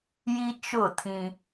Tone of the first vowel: high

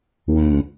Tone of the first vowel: low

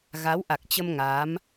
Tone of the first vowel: rising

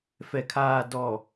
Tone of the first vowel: low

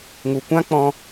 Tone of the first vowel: low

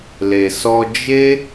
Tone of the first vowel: low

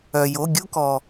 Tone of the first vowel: low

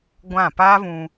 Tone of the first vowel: falling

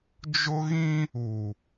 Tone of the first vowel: high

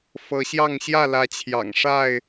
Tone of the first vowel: rising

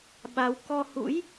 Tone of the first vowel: rising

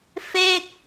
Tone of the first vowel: falling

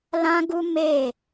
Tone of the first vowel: high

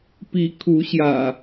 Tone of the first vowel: rising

